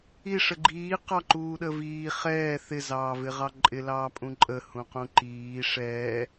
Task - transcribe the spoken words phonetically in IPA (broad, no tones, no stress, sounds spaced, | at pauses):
i ʂ ə ɡ͡ǃ iː q ɑ ǃ uː ɗ ə v iː χ ɛː θ ɪ z ɑː v ɪ ʁ ɑ ǃʼ ɪ l ɑː pʼ ũ ǃʼ ə h ũ q ũ ǃ iː ʂ ɛː